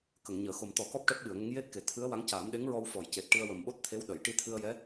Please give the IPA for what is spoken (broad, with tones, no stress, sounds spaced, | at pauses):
k ə˨˩˨ ŋ ɲ əː˨˩˨ x o˨˩ m t̪ ɔ˨˩˦ k ɔ˦˥ p̚ ʈ ɛ˦˥ p̚ ɓ ɨ˨˩˨ ə̯ ŋ ə˧˥ ŋ j e˦˥ t̚ k e˨˩˨ t̪ʰ ɨ˧˥ ə̯ w a˧˥ ŋ c aː˨˩˦ m ɗ e˧˥ ŋ ɹ ɔ˧ w f ɔ˨˩˨ j c e˨˩ t̚ ʈ ɨ˧ ə̯ w ə˨˩ m ɓ o˦˥ t̚ t̪ʰ e˧˥ w ɗ ə˨˩˨ j ʈ i˧ t̪ʰ ɨ˧ ə̯ j ɛ˧˥